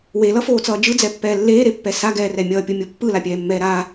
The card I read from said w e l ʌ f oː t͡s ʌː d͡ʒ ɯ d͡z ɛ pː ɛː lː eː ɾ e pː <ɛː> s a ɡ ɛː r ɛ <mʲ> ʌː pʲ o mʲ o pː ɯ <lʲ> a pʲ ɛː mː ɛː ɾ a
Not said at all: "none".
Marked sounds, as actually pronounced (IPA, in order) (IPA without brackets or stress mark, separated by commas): ɛ, mʲ, l